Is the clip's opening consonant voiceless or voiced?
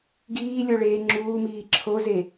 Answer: voiced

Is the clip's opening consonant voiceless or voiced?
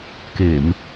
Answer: voiceless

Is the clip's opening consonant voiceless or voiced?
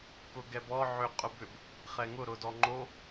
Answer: voiceless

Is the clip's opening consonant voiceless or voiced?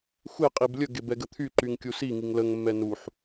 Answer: voiceless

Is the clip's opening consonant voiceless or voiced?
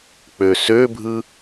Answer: voiceless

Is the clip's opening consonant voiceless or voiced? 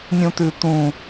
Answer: voiced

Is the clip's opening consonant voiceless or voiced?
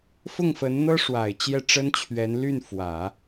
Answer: voiceless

